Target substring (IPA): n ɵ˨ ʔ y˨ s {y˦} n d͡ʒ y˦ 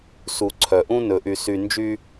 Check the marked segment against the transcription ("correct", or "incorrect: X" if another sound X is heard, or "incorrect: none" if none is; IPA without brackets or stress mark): incorrect: y˨